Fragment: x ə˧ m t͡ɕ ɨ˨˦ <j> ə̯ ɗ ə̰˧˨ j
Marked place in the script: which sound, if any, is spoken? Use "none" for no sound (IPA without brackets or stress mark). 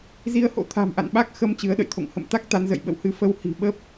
none